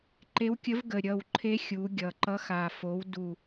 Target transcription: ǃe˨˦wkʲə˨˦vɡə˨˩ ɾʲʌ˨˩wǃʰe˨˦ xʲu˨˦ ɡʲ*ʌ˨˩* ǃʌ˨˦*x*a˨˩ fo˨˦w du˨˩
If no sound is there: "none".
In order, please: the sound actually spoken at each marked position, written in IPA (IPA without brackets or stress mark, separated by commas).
ʌ˨˩, x